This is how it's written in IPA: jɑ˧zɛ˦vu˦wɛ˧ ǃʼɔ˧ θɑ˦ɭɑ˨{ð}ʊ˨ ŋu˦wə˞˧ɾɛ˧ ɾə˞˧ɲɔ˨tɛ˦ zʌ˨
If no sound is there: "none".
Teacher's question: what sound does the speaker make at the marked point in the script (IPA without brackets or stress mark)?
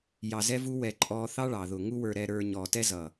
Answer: ð